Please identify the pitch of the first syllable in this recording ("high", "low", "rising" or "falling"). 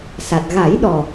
low